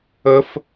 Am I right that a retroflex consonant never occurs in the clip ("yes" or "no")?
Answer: yes